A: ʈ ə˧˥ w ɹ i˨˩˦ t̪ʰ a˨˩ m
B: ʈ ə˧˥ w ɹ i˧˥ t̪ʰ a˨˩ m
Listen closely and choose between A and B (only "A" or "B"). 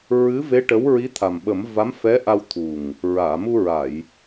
B